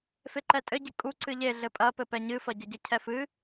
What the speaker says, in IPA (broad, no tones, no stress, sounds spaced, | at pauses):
f e ǃ ɛ tʼ ɘ ɟ ɨ kʼ u ǀ ɨ ʎ e ɮ ɘ pʼ ɐ p ɘ p ɛ ɲ ɨ f ɐ ɟ ɐ ɟ ɘ cʰ ɛ f ɨ